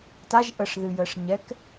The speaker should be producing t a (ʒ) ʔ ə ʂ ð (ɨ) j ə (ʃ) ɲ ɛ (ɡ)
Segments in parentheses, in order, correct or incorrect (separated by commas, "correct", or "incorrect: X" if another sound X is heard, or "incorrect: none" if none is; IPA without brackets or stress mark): correct, correct, incorrect: ʂ, incorrect: k